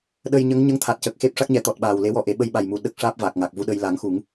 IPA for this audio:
ɗ ə˧ j ɲ ə˧˥ ŋ ɲ ə˧˥ ŋ t̪ʰ a˨˩ t̚ c ə˨˩ k̚ x e˦˥ p̚ ʂ a˦˥ k̚ ɲ ɛ˨˩˦ t̪ ɔ˨˩ t̚ ɓ aː˨˩ w l e˧˥ w ɔ˧ ʔ e˨˩˦ ɓ ə˧ j ɓ a˨˩ j m u˨˩ ɗ ə˦˥ k̚ ʂ aː˦˥ p̚ v aː˨˩ k̚ ŋ a˨˩ k̚ v u˧ ɗ ə˧ j l a˨˩˦ ŋ x u˨˩˦ ŋ

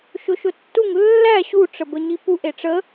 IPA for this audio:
ʃ ʊ ʃ ʊ tː u ŋ lː æ ɕ u ʈ͡ʂ ə b ə ɲ i p u ʔ e ʈ͡ʂ ə

